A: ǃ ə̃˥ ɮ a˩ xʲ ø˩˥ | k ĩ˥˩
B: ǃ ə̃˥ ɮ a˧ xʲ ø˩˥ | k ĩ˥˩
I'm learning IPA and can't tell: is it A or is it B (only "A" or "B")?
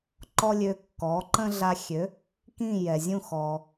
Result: B